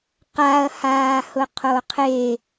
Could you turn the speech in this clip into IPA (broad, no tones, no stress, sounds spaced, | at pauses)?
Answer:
q a ɐ̯ h aː h ʊ qʰ o qʰ e